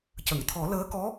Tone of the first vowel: low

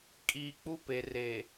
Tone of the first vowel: low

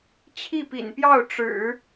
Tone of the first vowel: falling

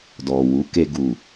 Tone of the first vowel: low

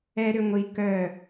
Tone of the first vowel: high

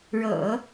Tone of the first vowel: low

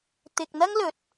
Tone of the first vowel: low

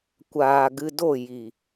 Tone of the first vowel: low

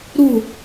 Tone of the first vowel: falling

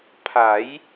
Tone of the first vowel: rising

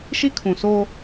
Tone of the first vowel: high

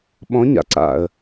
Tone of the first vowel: rising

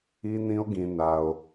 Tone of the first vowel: high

